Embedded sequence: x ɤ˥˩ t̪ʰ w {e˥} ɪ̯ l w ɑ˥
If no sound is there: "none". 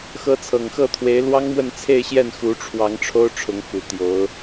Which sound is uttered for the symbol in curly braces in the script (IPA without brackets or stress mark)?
e˧˥